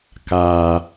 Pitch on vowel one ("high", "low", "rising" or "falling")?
low